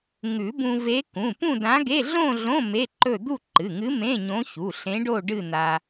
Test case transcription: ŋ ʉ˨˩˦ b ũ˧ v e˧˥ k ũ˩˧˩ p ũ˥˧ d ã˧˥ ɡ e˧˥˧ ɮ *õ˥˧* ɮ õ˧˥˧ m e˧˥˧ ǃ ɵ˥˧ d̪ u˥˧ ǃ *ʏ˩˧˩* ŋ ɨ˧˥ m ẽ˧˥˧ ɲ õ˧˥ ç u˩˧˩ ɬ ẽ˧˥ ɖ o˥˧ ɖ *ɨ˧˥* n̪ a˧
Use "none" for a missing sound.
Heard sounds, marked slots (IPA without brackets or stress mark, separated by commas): õ˥˧, ɨ˩˧˩, ɨ˥˧